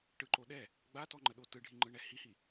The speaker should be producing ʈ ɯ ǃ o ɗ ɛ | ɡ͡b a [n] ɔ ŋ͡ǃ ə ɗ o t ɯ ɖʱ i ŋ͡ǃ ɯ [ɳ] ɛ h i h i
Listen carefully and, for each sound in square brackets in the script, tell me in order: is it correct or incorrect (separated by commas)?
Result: incorrect, correct